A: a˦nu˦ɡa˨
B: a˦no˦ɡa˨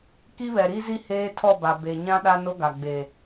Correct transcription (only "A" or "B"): B